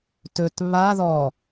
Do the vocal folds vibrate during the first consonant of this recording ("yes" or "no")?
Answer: no